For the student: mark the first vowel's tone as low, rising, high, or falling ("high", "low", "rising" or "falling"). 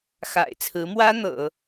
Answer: low